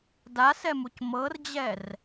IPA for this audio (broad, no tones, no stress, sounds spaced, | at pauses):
d a s ɛ m u c m ɤ r d͡ʑ ɛ r